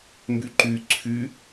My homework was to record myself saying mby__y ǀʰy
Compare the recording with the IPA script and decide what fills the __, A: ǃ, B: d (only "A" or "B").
A